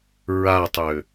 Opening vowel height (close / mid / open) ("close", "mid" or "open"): open